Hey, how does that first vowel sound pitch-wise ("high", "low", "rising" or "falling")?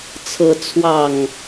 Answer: rising